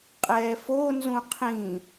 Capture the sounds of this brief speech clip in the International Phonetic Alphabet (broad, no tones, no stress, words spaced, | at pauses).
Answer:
qʼɛːfo nzũqʰĩ